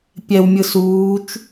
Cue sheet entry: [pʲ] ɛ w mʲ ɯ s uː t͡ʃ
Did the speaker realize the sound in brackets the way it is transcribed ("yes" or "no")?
yes